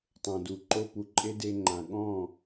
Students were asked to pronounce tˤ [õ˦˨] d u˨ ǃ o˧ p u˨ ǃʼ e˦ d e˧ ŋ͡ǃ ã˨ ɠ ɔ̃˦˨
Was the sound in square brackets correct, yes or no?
no